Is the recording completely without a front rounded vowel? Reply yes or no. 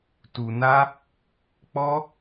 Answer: yes